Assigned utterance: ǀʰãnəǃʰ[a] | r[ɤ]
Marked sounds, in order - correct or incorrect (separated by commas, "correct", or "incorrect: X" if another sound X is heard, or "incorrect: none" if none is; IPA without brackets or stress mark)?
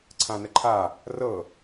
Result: correct, correct